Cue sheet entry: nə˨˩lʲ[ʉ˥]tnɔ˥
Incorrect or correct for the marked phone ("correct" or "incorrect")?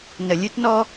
correct